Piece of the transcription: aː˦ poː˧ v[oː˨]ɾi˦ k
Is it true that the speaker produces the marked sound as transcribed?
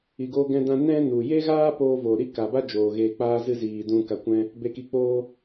yes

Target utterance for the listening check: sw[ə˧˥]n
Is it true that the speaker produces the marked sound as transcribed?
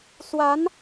no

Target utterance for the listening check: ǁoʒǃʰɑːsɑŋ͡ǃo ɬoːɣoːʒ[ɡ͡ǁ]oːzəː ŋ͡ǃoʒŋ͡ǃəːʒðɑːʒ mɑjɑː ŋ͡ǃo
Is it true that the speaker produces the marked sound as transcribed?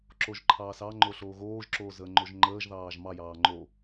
no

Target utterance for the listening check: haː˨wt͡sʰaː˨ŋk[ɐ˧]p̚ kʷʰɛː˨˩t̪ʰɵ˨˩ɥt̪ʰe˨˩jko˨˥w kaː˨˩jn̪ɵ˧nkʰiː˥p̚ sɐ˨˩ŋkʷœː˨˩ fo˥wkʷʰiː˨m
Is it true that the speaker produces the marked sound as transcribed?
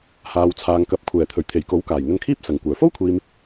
no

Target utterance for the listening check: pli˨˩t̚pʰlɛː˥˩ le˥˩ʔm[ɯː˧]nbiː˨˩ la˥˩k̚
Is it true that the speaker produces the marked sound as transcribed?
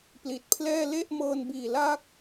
no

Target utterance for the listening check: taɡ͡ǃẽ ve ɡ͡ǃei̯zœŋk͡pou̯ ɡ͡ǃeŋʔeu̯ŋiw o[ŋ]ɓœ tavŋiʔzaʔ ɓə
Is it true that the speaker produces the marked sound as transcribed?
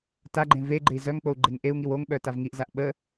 yes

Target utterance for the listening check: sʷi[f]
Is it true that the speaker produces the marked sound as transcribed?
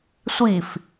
yes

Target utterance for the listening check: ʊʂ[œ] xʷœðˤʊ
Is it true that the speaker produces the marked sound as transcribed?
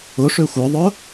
no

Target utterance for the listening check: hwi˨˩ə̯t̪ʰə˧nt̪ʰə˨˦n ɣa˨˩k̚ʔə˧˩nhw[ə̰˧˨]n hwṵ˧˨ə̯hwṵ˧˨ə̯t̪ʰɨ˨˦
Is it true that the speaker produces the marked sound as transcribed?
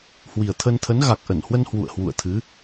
no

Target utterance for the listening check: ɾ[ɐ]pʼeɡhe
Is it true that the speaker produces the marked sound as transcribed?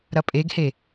yes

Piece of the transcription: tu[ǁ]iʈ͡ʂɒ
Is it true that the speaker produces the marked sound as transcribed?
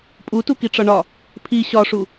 no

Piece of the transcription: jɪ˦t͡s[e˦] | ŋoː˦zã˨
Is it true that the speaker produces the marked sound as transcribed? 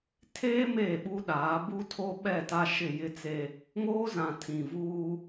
yes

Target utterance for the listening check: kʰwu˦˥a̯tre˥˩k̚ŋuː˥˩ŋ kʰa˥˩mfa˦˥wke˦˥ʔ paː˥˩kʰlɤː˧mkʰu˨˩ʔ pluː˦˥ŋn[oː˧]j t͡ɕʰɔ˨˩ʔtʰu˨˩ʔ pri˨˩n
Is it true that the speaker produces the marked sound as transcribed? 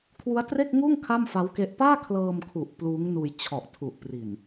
no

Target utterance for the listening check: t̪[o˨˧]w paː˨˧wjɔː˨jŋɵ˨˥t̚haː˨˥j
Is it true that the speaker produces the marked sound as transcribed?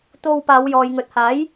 no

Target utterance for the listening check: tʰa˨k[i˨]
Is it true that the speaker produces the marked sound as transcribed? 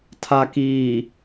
no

